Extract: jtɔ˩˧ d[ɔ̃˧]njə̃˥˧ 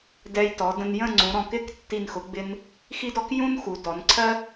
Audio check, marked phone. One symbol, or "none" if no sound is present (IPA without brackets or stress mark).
ə̃˧